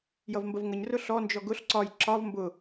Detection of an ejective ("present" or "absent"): absent